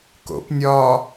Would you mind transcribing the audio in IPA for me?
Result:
k o̰ p nʲ ɒː

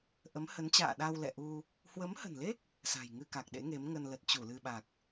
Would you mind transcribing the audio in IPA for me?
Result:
ʔ ə˨˦ m h ə˨˦ n t͡ɕ a̰ː˧˨ ɗ a˧ w l ɛ̰˧˨ ʔ u˧ | h w ə˨˦ m h ə̤˨˩ n l e˦˥ k̚ | s a̤˨˩ j ŋ ɨ˧ k a˨˩ k̚ ɗ ḛ˧˥ ŋ e˨˦ m ŋ ə˧ n l ə˨˩ t̚ t͡ɕ u˧˩ l ɨ˧ ɓ a˨˩ k̚

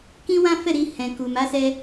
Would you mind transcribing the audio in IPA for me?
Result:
k ĩ˦ w ã˦ f ɛ˦˨ ɾ i˧ h ɛ̃˨ k u˨ m a˨˦ s ɛ˧

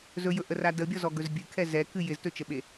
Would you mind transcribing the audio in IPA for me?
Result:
z ɵ j ɵ ʔ ə r a d ə bʲ ɔ z ɔ ɡ ɵ z bʲ ɨ kʰ ɛ z ɛ k ɨ j ɪ z t ɵ t͡ʃ ə ɓ e

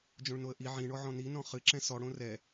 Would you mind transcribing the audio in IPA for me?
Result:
d͡ʒ õ ɭ n o ə̯ ʔ i ʕ ĩ ɳ ɔ ʕ ɔ̃ n i n ɔ̃ χ ɨ ǁ ɛ̃ s ɔ ɽ õ r ɛ

